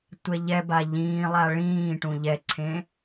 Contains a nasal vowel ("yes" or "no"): yes